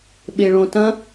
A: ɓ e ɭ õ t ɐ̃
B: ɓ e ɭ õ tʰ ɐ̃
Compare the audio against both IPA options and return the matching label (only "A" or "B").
A